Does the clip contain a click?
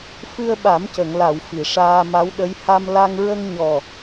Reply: no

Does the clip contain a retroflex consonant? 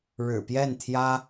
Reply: yes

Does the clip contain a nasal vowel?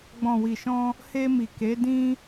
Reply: yes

